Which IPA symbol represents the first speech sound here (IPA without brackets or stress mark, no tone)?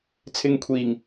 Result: t͡sʰ